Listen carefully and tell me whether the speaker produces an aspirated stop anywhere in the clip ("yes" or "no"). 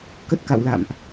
no